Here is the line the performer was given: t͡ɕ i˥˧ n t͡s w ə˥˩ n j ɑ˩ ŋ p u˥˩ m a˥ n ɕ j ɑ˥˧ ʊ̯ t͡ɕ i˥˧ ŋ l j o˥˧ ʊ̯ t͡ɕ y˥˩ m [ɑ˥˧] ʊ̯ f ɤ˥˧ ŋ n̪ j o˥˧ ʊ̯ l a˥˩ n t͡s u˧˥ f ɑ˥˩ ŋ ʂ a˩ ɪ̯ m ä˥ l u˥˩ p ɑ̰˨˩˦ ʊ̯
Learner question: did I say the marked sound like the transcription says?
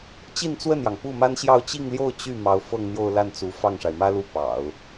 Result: no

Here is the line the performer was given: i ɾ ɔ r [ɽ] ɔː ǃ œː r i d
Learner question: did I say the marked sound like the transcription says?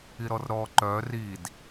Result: no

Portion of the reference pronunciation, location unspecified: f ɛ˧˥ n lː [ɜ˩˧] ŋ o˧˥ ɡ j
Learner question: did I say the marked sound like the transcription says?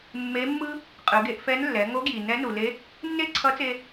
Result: no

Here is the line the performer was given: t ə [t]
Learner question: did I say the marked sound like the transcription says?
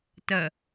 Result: no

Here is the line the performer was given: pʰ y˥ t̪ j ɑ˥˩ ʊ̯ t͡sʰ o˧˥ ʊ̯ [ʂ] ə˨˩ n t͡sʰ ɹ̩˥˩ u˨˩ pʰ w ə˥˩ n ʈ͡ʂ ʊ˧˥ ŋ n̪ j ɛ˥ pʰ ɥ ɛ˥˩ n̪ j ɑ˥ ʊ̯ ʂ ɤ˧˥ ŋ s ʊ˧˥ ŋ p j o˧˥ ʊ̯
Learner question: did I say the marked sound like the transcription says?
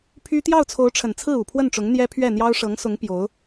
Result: no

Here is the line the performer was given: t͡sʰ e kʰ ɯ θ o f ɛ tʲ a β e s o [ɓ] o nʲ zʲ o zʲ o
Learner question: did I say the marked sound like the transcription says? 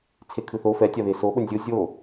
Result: yes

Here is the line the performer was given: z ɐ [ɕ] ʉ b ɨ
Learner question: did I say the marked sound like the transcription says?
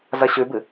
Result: yes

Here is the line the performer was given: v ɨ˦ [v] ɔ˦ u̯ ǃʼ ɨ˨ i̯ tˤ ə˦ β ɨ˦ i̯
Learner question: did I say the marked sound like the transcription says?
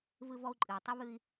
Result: yes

